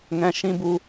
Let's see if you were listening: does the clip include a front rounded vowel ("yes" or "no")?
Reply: no